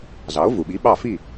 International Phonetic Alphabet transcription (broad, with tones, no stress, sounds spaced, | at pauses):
z ɑ˩˥ o̯ v u˩ ɓ i˩˥ ɓ ɑ˥˩ f i˥˩